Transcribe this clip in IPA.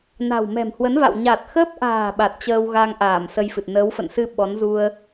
n a̤˨˩ w m ɛ̤˨˩ m h w ə˨˦ n v a̰˧˨ w ɲ a˨˩ t̚ x ə˦˥ p̚ ʔ a̤ː˨˩ ɓ a˨˩ t̚ t͡ɕ əː˧ w ɣ a˧ ŋ ʔ aː˧˩ m s ə˧ j f ɨ˨˩ t̚ n əː˨˦ w f ə̰˧˨ n s ɨ˧ ɓ ɔ˨˦ n z u˧ ə̯

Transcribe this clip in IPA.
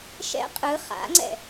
ʃ ɛ̰ qʼ ɯ χ a̰ ŋ͡ǀ ɛ̰

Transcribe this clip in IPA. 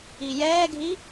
i j ɛː ɡʱ i

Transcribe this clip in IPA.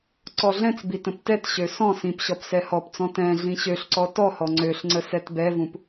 ǀ ɔ ɮ ɛ̃ t͡s b i t ə̃ p t ɛ t ɕ ø s ɔ̃ s ĩ p ɕ ɔ p s ɛ h ɔ p t͡s ɔ̃ t ɛ̃ ɮ ĩ ɕ ø ɬ ǀ ɔ t ɔ h ɔ ŋ͡ǀ ø ɬ ŋ͡ǀ ə s ɛ t b ɛ v ũ p

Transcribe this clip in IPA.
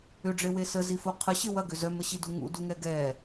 ʏ ɖ͡ʐ e w e s ə z i f o qʰ ə ɕ ɪ w ɐ ɡ ʏ z œ m ə ɕ i d u ŋ ṵ d u ŋ ɛ ɡ ɛ

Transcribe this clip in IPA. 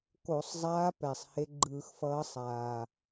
k o˧˩˧ sˤ zˤ aː˧˥ p ɛ˨˩ sˤ h e˧˥ ɡ͡ǃ ɯː˧˩˧ x f ʌː˧˥ sˤ aː˨˩

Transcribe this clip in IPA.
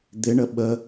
d̪ ɪ ɳ ə ɓ ə

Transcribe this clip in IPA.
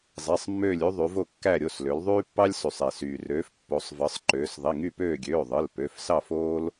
zˤ i˩˧˩ sˤ mː øː˦˨ lʲ y˦ ðˤ y˩˧ v o˦˨ kː æ˦˨ ɾʲ o˩˧˩ s l ø˩˧ l ðˤ yː˦ pː ɑ˦ lʲ s y˩ sˤ e˩ s yː˩ r øː˩˧ f pː o˩˧ sˤ v ɯ˩˧ sˤ ǃ øː˩˧ s ðˤ i˩˧˩ ŋ y˦˨ p øː˦˨ ɡʲ øː˩˧˩ ðˤ ɯ˩˧˩ l p ø˩˧˩ f s ɑ˦˨ f oː˦ l

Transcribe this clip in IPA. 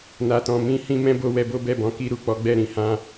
n a˨ t ɔ̃˨ m ĩ˧ h ĩ˧ m ɛ̃˦ b o˧ w ɛ˧ b o˦ b ɛ˦˨ b ɔ̃˨˦ k i˧ ɾ u˨ k͡p ɔ˨˦ ɡ͡b ɛ˦˨ ɾ ĩ˨ h ã˧

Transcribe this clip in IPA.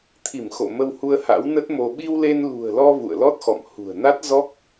t̪ʰ i˧˩ m x o̰˧˨ m ə˧ w h u˧ ə̯ h a̰˧˥ w n ə˦˥ t̚ m o˧ ɓ i˧ w l e˧ n l ṳ˨˩ ə̯ l ɔ˧ v ṵ˧˨ ə̯ l ɔ˦˥ t̚ x ɔ̰˧˨ m h ṳ˨˩ ə̯ n a˦˥ t̚ z ɔ˦˥ k̚

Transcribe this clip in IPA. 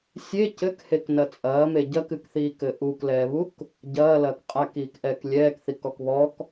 sʲ e c ɘ k h e k n ɐ t͡sʼ ɐː m e ɟ ɐ k ɨ k θ iː k ɘ ʔ u k l ɛː β u k | ɟ ɐː l ɐː k qʼ a k iː k ʔ ɛː k lʲ ɛː k θ i k ɔ k β ɔ k

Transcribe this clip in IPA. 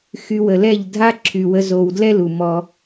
x y˧ w ə˨ l ɛ˦˨ ʎ dʱ a˦ ǁʰ y˨ w ə˧ z o˨ w d l ɛ˦ l u˨ m ɔ˧

